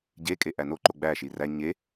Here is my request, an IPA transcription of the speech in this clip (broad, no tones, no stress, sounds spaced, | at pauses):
ɟ e kʼ e ʔ æ n o ǃ o ɡ͡b æ ʃ i r æ ɲ e